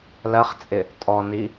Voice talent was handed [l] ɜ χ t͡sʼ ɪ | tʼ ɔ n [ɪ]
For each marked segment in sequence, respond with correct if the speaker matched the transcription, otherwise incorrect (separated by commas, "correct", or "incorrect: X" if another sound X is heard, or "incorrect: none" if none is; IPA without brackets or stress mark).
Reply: correct, incorrect: i